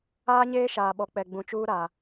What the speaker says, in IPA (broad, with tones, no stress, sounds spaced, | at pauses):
aː˦ ɲ eː˦ ʃ aː˨ ɓ ɔ˨ k͡p ɛ˨ ɡ͡b ũ˨ t͡ʃ uː˦ ɾ a˨